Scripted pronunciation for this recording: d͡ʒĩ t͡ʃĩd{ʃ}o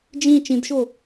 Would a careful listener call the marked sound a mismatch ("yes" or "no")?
no